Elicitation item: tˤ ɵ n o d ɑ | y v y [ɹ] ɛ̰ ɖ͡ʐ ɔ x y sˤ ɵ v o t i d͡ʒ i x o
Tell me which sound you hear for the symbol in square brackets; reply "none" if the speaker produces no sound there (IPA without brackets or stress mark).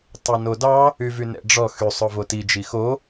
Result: n